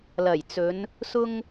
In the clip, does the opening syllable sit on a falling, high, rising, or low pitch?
low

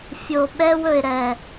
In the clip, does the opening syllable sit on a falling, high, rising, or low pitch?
low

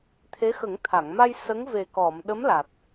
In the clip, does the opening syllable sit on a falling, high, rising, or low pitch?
rising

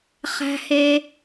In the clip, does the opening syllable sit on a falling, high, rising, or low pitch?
high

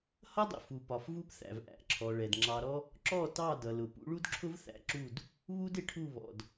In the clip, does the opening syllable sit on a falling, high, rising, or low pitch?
high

